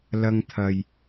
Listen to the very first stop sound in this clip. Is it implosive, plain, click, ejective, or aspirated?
aspirated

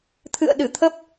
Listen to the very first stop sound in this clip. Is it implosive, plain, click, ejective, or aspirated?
aspirated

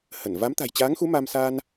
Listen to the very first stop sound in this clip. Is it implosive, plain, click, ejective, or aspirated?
plain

